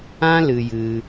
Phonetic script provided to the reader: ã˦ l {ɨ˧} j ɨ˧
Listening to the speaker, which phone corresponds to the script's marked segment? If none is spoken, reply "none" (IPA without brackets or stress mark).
ɨ˧